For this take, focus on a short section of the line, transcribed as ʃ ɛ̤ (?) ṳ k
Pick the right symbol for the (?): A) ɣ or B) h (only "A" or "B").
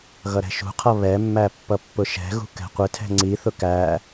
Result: A